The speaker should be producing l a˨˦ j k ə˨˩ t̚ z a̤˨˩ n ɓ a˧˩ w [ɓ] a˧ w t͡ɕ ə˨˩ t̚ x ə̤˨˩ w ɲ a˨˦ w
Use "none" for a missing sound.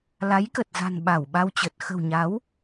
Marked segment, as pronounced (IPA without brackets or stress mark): ɓ